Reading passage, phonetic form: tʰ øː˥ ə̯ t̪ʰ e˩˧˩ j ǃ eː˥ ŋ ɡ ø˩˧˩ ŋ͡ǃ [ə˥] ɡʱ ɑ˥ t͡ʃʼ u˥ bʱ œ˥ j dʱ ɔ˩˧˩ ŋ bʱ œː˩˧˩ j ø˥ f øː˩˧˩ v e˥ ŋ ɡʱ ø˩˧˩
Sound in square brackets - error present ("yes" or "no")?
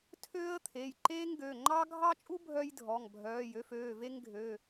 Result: yes